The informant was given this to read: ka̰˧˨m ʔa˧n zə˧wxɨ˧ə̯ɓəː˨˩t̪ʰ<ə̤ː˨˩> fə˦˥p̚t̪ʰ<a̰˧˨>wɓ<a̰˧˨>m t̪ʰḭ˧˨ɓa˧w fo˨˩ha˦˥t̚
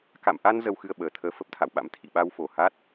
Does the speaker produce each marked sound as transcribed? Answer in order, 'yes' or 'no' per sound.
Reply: no, yes, no

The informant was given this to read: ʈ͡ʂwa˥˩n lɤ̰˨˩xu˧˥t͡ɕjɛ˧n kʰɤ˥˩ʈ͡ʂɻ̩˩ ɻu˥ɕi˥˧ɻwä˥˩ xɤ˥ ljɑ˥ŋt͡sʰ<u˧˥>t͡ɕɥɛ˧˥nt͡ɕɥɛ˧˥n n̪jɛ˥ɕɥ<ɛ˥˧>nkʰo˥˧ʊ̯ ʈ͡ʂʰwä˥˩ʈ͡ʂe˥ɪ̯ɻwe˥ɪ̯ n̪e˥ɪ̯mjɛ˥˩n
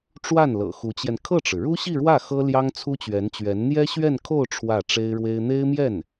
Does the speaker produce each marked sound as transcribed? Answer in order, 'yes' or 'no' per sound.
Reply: no, yes

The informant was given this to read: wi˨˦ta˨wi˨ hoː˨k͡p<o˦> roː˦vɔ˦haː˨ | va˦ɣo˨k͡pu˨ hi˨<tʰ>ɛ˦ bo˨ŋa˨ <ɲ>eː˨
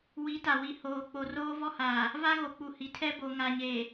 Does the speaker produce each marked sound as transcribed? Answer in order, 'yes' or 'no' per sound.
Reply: no, yes, yes

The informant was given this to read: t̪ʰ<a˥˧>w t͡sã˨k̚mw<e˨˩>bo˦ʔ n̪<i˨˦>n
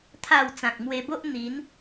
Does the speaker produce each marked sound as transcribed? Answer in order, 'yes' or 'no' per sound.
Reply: yes, no, yes

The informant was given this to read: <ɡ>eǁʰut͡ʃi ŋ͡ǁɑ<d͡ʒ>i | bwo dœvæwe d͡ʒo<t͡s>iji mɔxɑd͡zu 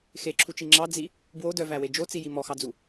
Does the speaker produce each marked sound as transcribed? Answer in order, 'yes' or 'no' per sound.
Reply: no, no, yes

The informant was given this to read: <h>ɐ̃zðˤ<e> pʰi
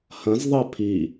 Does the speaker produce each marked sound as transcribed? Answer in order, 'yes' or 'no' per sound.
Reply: yes, yes

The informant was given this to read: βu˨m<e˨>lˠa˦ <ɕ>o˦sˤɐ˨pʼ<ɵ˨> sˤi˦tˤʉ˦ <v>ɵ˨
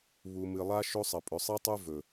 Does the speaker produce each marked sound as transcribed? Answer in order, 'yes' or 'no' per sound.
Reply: no, no, yes, yes

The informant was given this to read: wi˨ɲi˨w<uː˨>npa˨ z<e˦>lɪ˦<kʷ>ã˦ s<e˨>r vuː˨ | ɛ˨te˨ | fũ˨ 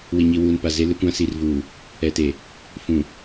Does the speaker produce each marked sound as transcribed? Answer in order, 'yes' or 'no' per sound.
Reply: yes, yes, yes, no

